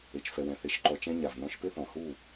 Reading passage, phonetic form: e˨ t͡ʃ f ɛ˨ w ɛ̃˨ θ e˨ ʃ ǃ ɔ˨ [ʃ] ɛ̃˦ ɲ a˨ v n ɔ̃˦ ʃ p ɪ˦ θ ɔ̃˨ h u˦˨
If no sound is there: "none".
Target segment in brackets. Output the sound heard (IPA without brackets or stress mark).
t͡ʃ